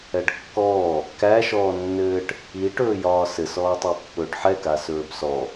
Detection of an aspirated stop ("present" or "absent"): absent